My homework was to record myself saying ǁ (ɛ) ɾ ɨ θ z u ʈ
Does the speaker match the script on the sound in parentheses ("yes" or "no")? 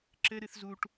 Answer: no